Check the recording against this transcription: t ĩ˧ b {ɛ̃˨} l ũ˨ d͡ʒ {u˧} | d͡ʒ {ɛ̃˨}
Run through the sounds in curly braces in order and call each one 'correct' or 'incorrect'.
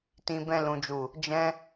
incorrect: ɛ̃˧, incorrect: u˨, incorrect: ɛ̃˦

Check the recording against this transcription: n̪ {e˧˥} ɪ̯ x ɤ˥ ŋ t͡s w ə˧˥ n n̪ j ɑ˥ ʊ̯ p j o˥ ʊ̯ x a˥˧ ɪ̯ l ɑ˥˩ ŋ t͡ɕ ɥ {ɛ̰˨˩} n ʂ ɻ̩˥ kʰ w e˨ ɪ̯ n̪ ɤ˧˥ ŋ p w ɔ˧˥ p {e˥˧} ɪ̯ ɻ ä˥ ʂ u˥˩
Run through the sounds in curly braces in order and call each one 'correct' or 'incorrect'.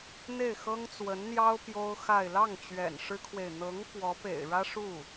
incorrect: e˥˩, correct, incorrect: ḛ˨˩

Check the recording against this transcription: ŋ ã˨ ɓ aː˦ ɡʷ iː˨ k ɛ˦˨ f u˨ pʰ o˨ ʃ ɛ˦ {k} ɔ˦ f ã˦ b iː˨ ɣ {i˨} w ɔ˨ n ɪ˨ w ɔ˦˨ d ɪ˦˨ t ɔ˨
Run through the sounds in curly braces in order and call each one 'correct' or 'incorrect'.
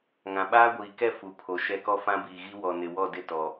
correct, incorrect: i˦

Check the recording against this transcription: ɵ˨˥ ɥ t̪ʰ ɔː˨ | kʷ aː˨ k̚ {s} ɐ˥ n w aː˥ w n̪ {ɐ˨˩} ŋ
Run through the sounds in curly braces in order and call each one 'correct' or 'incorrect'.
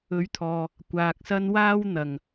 correct, incorrect: ɐ˨

